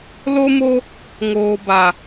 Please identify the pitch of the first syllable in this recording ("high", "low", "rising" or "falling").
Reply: high